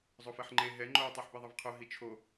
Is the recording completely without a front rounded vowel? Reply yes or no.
yes